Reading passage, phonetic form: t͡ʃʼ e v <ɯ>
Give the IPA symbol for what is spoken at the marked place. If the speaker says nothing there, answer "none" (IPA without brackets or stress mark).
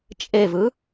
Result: ɯ